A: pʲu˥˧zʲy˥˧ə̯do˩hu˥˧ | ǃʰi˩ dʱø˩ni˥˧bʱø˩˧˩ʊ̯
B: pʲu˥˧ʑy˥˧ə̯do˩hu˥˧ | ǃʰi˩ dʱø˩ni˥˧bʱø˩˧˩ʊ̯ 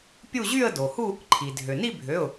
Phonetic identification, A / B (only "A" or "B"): B